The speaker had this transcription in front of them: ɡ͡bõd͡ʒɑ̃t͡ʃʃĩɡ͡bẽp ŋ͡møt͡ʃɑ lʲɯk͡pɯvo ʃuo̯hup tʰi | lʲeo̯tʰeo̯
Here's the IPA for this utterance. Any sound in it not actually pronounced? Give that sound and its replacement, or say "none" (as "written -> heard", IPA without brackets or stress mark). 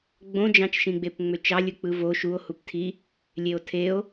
ẽ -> e